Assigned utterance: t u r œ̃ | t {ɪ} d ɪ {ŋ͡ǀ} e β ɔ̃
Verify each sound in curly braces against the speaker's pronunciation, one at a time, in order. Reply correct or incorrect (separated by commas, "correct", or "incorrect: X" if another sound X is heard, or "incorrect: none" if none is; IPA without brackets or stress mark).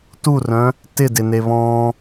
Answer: correct, incorrect: n